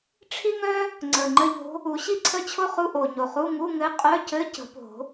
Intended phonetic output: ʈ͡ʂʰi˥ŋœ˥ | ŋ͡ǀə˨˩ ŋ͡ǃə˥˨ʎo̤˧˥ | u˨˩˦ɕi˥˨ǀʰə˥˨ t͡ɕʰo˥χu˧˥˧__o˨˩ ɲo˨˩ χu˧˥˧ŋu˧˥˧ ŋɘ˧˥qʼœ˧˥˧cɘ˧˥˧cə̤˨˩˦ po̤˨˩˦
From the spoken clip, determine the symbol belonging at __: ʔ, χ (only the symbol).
ʔ